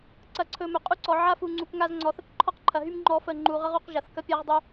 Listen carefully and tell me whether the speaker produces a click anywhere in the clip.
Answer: yes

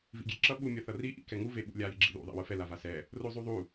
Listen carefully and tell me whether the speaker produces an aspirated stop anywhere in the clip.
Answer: no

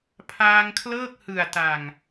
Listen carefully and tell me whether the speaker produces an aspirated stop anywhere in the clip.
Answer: yes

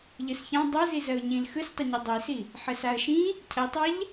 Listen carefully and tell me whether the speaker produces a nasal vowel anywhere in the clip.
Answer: yes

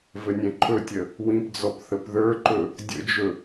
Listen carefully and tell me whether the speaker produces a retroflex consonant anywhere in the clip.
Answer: no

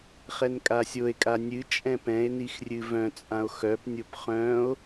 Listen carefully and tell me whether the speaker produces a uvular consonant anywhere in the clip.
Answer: yes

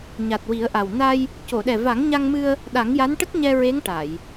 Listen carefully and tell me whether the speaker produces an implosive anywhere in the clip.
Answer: yes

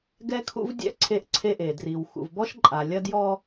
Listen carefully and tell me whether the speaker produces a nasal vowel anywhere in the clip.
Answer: no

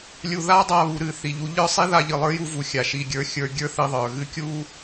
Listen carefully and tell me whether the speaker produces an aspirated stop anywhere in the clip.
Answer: no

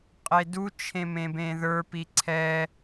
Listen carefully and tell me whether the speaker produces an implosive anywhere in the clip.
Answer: no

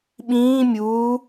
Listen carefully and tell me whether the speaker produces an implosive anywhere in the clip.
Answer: yes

